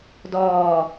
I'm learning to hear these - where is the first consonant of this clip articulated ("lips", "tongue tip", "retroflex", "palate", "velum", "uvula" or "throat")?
tongue tip